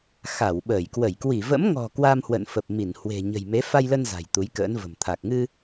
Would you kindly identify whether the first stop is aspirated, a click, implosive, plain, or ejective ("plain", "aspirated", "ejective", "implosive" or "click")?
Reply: implosive